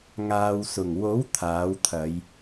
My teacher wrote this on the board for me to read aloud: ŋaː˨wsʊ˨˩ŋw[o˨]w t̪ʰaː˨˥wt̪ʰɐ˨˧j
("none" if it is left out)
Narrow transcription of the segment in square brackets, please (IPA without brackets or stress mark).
o˨˥